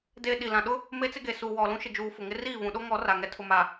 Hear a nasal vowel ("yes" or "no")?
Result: yes